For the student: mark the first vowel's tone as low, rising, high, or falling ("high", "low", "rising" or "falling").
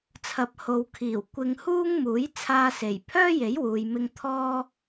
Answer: low